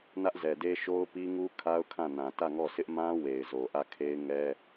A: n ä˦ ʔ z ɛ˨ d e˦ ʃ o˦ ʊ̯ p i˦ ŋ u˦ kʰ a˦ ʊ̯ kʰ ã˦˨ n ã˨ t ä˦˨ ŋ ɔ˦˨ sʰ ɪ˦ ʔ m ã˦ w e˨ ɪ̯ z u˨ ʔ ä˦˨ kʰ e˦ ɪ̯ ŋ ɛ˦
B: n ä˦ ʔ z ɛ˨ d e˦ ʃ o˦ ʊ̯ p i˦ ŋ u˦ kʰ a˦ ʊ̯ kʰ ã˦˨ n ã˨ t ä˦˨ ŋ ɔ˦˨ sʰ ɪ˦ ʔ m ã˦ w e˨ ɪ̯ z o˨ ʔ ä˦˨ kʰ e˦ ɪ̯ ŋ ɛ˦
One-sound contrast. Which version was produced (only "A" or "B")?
B